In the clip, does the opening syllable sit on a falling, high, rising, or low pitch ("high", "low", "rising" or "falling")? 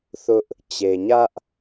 high